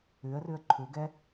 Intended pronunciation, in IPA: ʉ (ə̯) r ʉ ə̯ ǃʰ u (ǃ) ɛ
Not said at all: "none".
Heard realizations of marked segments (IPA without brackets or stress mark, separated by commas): ə̯, ɡ